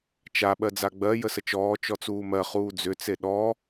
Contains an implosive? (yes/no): yes